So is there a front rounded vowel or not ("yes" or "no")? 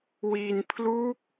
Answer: no